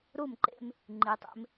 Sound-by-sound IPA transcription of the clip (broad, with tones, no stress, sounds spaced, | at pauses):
ɾ u˥˩ m ǃ ḛ˧ m | ŋ͡ǃ i˩˧ tˤ ḛ˧ m